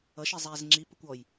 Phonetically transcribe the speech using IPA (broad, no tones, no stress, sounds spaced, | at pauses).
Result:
ʌ ʃ i zˤ ɛː z ŋ͡ǁ i p ə kʷ ɔ j